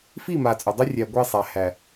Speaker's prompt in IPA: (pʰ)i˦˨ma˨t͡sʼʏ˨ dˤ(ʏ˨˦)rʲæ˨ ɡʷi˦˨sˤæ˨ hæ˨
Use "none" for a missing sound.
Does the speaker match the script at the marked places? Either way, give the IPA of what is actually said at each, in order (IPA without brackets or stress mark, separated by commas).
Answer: f, ʏ˦